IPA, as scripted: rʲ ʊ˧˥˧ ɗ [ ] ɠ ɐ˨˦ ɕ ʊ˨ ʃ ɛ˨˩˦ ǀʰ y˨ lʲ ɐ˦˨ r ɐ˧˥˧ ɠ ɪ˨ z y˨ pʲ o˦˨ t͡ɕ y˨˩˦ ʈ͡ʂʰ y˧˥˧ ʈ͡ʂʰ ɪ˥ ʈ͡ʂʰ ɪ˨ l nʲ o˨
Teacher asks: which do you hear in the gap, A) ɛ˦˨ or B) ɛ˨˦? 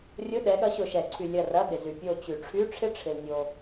B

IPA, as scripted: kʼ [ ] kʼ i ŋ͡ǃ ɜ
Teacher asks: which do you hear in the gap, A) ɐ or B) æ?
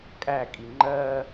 B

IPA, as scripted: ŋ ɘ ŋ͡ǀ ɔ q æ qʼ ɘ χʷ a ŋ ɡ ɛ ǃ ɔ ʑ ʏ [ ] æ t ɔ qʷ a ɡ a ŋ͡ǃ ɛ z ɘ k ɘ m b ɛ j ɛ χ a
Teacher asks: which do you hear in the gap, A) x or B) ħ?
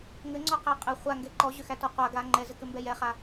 A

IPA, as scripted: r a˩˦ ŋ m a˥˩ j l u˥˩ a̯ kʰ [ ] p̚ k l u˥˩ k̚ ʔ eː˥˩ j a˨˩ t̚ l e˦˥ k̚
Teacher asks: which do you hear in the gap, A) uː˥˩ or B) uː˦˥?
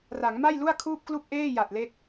A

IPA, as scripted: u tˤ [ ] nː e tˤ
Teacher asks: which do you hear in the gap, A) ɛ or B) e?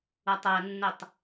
A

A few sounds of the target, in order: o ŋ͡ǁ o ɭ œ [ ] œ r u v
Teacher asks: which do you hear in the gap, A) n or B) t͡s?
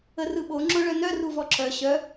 A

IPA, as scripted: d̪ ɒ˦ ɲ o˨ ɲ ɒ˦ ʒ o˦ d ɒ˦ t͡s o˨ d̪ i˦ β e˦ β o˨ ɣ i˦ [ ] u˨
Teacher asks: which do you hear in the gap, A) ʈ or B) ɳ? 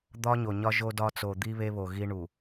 B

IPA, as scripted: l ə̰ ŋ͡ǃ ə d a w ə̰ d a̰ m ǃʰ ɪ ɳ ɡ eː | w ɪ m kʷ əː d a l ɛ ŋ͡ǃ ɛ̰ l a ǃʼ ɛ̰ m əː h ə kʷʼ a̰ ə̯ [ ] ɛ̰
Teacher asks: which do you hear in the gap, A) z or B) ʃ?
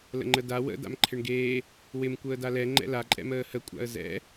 A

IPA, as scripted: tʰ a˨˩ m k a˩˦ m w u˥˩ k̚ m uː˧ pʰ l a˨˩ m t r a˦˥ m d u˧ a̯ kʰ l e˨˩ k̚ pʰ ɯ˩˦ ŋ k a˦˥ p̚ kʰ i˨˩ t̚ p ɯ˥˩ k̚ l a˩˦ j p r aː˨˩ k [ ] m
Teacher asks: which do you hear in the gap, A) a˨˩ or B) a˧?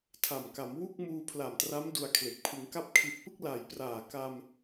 B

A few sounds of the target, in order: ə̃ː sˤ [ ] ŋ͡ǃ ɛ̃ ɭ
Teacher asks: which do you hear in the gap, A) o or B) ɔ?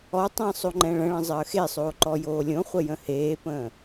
A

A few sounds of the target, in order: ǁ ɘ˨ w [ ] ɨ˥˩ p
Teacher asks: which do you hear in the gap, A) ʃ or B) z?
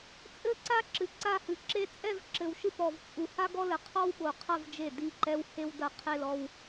A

